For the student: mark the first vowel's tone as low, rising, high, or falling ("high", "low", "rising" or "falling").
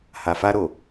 low